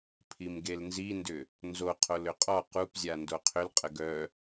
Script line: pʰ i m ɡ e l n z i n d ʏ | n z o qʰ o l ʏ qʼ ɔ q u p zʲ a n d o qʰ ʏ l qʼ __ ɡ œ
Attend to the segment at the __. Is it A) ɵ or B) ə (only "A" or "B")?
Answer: B